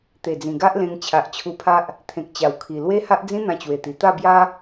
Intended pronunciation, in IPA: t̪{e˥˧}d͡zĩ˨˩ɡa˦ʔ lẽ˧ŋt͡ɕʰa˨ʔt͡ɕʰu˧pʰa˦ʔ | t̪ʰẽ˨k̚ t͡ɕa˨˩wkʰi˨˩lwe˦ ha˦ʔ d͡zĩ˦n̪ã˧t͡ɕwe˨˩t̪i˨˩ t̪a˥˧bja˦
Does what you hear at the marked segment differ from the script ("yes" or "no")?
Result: yes